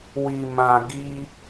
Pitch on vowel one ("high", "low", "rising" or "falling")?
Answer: low